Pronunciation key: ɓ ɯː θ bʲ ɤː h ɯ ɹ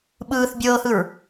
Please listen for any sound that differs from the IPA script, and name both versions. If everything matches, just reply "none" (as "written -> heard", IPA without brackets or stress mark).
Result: none